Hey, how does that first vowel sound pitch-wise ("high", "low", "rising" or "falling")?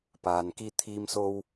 low